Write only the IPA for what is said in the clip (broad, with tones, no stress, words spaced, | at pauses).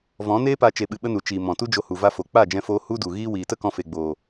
vɔ̃˨˦neː˦pa˧ t͡ʃe˧ɓɨ˧ɓə˦nu˨ t͡ʃiː˨ mɔ̃˨tu˦d͡ʒo˧ hu˨va˦fo˨ k͡pa˦˨d͡ʒɛ̃˧foː˧ hu˦du˨ ɣiː˦ wiː˨tə˦ kɔ̃˧fe˨ɡ͡boː˨